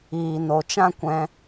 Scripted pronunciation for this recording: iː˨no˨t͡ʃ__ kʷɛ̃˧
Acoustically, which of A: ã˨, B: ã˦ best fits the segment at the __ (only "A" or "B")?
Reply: B